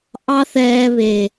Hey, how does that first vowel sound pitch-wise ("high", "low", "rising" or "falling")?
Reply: high